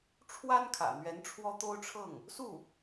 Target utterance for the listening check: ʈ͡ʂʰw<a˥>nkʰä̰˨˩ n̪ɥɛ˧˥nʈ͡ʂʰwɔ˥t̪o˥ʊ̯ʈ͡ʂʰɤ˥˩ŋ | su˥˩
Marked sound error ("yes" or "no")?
no